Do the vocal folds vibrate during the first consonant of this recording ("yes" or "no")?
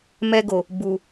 yes